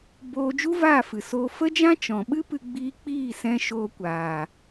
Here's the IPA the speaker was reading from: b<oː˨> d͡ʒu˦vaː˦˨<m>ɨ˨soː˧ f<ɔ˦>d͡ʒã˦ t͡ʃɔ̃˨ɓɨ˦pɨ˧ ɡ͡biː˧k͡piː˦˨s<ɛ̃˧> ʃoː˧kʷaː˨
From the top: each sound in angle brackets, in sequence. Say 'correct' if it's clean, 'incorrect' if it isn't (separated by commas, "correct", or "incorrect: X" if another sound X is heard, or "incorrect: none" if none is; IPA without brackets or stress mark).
incorrect: oː˧, incorrect: f, incorrect: ə˦, correct